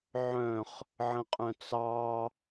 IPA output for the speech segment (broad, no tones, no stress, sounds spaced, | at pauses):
ʕ œ̃ χ | ʕ ə̃ qʼ œ̃ t͡s ɑ